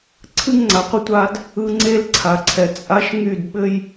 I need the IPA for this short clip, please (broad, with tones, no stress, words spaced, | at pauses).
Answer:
ǀʰɨ˦ŋŋ͡ǀa˨qʷə˦ tʷa˦d | ɯ˦ ŋ͡ǀe˦l ǀʰa˨ǀʰɛ˨ t͡sʼa˦ʃ ŋy˦˨d ɓɘ˦j